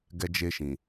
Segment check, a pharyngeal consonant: absent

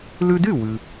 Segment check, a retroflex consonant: absent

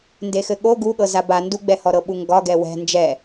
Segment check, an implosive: present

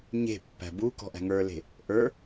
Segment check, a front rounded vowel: absent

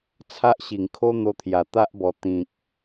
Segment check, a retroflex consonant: absent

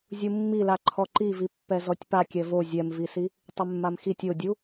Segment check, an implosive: absent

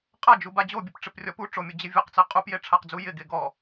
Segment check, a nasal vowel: absent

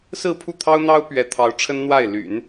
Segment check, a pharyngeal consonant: absent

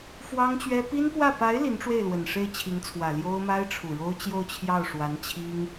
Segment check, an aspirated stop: present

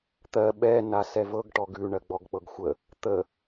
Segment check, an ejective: absent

